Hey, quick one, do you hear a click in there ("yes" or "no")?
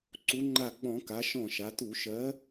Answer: yes